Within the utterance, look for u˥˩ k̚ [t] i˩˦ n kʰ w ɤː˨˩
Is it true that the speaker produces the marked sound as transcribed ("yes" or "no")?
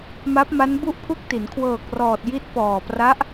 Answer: yes